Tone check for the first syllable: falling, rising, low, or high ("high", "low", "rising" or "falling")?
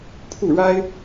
falling